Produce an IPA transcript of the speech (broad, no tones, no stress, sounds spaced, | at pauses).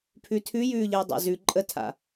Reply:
pʰ ʉ tʰ ʉ j ʉː ʎ əː dˤ a̰ z ʉ ǃʼ ə tʰ a̰